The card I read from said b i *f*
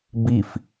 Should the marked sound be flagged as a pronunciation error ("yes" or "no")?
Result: no